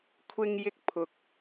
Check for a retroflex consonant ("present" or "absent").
absent